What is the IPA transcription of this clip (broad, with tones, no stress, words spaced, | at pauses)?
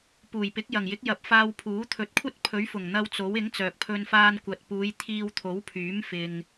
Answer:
puː˨˩jpɪ˨˥k̚ jɐ˨˩ŋjɪ˨˥k̚ jɐ˨˥p̚faː˧w pʰuː˨˥t̪ʰɵ˨˥t̚kʷʰɐ˥t̚ pʰɵ˨˥ɥfʊ˨˩ŋn̪ɐ˧w t͡so˨˥w ɪ˨˥ŋ t͡sœː˨k̚pʰɵ˧n faː˧nkʷɐ˨t̚puː˨˧j t̪ʰiː˧wt̪ʰo˨˥wpʰyː˨˥m fɪ˨ŋ